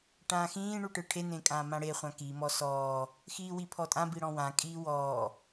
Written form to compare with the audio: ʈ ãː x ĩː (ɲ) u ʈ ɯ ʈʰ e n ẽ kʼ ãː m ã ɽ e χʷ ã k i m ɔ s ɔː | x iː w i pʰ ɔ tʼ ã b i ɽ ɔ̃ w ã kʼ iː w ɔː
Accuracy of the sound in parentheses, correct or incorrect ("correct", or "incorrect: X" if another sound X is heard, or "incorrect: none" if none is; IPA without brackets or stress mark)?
incorrect: ɳ